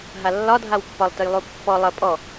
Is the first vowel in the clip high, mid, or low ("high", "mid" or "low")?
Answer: low